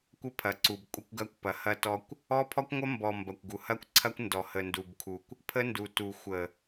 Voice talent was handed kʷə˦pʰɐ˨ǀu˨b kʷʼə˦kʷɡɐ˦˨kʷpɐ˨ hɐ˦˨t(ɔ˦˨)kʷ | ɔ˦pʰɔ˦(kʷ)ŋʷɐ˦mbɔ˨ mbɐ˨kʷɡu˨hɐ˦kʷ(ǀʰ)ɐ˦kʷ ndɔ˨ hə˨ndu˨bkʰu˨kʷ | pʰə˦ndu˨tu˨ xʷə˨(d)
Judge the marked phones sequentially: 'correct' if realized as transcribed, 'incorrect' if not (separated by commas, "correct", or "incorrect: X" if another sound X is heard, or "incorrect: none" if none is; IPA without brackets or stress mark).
incorrect: ɔ˦, correct, correct, incorrect: none